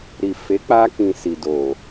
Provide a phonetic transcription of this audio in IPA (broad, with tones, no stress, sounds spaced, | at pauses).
ɾ i˨ f e˨˦ k͡p a˧ k ĩ˨ s i˨ d o˨